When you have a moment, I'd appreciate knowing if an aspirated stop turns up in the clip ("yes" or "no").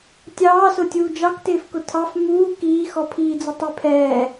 yes